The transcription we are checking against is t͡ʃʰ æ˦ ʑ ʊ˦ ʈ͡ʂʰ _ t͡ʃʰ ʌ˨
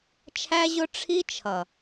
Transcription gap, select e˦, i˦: i˦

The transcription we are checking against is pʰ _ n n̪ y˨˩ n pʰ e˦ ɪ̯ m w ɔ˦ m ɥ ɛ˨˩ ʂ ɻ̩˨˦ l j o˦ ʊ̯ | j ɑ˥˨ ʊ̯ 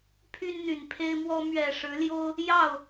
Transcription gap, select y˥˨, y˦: y˦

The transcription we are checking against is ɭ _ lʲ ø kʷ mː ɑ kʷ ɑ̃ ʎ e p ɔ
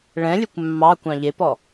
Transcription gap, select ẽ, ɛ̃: ɛ̃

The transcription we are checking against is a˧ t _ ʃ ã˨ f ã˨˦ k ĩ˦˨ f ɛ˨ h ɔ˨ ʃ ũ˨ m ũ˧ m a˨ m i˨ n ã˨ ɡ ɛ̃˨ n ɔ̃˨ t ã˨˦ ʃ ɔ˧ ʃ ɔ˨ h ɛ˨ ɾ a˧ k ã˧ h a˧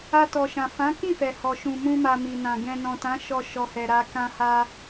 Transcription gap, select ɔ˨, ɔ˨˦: ɔ˨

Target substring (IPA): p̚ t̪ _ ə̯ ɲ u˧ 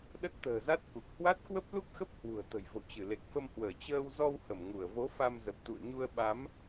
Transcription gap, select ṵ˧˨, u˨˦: ṵ˧˨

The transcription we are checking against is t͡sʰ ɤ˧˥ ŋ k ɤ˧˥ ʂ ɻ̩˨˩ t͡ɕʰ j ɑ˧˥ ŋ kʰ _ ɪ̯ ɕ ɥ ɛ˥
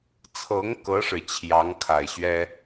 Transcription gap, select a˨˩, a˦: a˨˩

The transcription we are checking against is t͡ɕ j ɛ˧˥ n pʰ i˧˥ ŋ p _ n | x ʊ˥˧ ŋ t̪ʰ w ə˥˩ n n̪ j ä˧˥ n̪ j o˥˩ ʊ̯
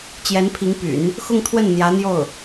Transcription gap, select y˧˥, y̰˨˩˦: y̰˨˩˦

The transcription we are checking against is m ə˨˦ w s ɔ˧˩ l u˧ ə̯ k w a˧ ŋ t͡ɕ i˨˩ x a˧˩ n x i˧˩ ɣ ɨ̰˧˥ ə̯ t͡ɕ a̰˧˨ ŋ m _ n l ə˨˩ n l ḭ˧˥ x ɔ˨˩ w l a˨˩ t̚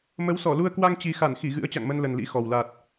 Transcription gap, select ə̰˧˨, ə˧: ə˧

